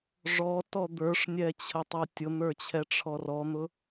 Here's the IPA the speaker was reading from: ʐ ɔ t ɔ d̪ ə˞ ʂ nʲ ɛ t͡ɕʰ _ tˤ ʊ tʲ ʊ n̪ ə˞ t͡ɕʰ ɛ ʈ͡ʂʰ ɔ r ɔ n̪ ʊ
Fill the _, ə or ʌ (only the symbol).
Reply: ə